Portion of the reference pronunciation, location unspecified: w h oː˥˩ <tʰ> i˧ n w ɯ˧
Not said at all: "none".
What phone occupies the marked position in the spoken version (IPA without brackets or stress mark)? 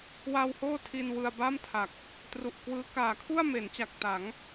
tʰ